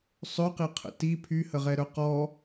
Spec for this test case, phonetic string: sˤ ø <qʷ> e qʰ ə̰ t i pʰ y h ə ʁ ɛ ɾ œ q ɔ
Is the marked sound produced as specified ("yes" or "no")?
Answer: no